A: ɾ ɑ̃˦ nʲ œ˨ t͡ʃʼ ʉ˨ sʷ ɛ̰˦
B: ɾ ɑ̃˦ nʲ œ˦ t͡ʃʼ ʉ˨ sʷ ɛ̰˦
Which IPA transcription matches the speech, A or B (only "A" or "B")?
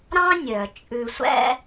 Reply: A